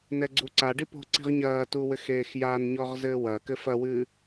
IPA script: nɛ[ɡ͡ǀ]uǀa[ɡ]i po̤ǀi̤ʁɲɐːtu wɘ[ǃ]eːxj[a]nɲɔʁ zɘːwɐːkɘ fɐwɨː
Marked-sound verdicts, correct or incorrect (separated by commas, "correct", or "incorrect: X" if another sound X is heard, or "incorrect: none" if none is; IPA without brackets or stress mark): correct, incorrect: ɖ, incorrect: x, correct